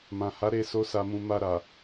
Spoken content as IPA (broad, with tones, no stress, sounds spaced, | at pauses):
m ã˨ h a˨˦ ɾ e˦˨ s o˧ s a˨ m ũ˨ m a˧ ɾ a˨